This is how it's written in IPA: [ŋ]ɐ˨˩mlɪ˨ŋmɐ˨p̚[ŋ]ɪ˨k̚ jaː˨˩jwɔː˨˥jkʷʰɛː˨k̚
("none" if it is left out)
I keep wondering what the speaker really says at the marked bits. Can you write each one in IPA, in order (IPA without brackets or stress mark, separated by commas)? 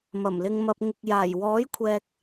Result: m, ŋ